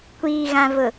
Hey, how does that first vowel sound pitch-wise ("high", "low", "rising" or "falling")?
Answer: low